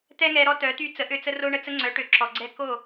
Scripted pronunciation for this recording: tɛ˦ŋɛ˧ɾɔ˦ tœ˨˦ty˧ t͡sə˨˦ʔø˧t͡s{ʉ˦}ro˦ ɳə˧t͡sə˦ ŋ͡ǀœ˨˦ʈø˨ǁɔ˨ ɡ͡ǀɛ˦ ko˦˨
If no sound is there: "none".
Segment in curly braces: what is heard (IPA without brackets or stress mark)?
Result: ə˦